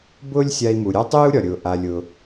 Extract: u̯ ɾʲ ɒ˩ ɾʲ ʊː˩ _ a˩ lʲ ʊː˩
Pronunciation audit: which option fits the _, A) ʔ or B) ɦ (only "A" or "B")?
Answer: A